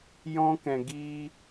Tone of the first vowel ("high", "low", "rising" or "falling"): high